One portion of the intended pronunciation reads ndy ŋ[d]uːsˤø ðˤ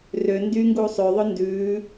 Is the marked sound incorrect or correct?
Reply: incorrect